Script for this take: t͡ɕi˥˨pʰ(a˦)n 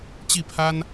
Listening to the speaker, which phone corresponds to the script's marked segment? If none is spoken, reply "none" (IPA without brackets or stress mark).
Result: a˦